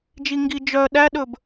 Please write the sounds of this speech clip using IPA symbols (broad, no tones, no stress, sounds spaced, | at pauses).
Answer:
d͡ʒ i ŋ ɡ i d͡ʒ œ ɗ æ ɗ ɵ b